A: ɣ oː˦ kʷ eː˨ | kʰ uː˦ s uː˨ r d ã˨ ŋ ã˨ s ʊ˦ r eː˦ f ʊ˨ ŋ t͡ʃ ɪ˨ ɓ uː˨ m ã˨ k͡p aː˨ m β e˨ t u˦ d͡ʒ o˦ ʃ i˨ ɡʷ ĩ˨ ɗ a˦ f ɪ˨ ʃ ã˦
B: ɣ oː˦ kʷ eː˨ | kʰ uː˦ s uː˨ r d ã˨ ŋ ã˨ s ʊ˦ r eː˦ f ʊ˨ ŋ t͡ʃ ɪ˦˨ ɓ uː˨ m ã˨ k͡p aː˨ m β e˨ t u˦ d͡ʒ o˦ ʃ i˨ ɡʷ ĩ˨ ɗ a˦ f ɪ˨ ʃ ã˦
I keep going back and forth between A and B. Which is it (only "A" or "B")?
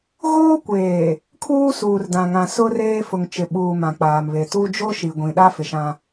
A